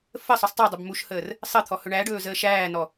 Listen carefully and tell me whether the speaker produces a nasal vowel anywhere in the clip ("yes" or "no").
no